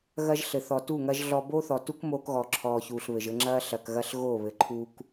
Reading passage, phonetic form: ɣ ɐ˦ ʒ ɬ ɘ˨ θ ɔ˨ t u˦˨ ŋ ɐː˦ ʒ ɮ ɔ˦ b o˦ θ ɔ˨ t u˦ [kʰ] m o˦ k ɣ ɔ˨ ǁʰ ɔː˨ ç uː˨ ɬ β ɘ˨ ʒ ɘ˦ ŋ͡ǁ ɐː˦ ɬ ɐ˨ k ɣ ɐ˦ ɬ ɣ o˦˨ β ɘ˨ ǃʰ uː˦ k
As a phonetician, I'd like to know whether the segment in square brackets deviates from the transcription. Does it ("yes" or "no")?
yes